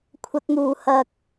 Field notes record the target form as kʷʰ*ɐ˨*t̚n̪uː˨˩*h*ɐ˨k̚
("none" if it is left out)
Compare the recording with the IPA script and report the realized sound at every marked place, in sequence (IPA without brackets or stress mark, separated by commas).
ɐ˨, h